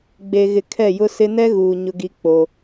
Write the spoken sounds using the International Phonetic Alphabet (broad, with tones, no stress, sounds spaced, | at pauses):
ɡ͡b e˨ ɣ ɪ˨ kʰ ɛ˦˨ j ʊ˦ s ɪ˦ n ɛ˦ ɣ uː˨ ɲ ʊ˦ ɡ i˦ k͡p o˦